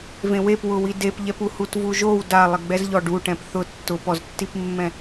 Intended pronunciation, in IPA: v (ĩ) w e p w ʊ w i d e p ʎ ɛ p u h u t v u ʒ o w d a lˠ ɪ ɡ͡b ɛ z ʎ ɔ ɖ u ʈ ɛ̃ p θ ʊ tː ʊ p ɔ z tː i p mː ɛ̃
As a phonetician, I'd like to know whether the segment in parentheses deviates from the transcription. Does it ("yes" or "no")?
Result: yes